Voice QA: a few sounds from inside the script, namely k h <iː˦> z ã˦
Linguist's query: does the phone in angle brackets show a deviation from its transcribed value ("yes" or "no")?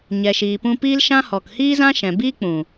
no